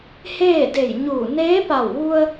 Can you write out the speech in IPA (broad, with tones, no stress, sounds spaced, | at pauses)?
h eː˥˨ d e˧˩ j ɲ uː˧˩ n eː˧˥ p a˧˩ w ʋ u˧ ə̯